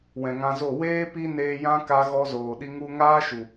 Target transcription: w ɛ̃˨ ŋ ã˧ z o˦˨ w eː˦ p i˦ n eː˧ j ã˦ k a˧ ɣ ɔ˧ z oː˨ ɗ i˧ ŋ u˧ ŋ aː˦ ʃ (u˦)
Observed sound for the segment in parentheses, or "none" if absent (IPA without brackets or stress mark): u˨